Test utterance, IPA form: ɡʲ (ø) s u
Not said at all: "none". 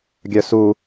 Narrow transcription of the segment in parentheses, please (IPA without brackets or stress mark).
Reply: œ